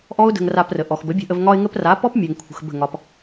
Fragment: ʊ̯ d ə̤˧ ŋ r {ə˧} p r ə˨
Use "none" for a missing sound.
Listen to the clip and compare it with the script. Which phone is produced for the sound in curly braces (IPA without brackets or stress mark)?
a˧